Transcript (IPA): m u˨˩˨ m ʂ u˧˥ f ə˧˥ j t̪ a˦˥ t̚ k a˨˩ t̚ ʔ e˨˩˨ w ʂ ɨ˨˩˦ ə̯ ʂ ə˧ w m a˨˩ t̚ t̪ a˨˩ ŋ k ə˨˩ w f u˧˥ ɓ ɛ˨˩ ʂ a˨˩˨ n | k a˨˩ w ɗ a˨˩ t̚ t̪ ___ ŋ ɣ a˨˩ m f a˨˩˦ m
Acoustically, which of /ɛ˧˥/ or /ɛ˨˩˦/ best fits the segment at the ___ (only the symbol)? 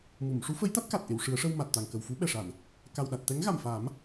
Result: ɛ˧˥